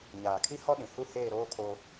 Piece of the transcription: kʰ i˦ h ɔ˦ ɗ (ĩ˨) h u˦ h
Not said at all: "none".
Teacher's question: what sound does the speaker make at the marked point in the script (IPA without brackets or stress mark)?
ĩ˨